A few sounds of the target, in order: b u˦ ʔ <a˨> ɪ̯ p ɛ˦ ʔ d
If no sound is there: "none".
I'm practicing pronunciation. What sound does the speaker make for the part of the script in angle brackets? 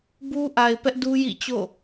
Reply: a˨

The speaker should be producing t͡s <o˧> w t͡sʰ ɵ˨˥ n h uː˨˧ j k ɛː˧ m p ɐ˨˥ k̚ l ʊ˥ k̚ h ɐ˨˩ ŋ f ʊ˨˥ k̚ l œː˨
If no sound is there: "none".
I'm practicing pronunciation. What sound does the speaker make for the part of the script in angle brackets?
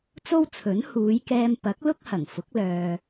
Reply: o˥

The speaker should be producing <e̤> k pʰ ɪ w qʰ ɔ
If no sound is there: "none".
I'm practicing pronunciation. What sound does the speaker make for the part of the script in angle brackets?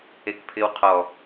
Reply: e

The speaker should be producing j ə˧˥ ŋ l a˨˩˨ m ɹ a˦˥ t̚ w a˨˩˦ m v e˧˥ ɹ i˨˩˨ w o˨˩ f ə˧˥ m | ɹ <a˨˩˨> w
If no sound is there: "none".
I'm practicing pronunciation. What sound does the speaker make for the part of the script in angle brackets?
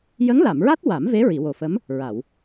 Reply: a˨˩˨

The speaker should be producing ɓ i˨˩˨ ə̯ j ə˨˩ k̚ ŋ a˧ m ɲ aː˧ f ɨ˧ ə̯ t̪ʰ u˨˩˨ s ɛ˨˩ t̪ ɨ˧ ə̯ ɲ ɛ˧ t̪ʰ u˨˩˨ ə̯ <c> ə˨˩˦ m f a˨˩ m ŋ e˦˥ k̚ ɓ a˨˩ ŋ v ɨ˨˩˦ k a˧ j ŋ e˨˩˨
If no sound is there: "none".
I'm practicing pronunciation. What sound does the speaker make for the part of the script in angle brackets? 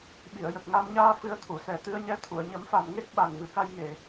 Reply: ɲ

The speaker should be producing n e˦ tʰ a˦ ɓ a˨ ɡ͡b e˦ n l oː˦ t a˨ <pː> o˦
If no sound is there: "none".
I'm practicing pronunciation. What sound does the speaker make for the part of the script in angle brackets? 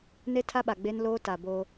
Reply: b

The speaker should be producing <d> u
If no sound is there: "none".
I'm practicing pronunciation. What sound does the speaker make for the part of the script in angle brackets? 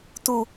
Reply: t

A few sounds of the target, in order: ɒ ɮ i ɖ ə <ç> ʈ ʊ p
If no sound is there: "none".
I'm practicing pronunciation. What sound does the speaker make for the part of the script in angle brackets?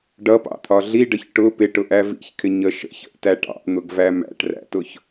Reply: ç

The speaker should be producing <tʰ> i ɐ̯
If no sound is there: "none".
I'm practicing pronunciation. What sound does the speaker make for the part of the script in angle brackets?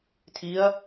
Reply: tʰ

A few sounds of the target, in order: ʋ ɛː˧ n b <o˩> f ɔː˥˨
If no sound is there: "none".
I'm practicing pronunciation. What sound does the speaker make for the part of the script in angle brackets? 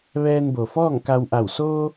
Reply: o˩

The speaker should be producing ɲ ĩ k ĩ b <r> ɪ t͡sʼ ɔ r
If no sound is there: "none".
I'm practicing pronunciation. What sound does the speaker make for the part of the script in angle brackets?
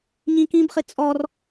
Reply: χ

